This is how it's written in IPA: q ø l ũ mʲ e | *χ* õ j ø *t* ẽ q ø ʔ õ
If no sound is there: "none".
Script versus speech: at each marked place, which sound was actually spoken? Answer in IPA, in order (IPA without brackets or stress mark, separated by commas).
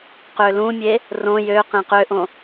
r, q